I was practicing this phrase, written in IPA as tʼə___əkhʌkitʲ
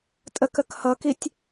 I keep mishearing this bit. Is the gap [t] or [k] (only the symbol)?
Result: k